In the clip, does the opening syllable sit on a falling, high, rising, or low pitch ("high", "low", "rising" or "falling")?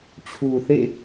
low